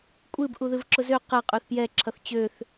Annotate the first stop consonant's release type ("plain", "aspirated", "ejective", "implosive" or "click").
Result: ejective